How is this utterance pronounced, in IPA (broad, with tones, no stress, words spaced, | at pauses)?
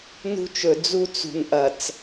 nṳ˦t͡ʃɵ˨ d͡zu˦t͡sṳ˨nʔɐ˨t͡s